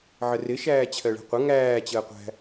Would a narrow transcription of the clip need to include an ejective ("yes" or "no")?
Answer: no